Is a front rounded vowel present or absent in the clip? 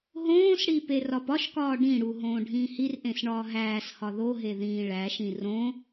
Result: absent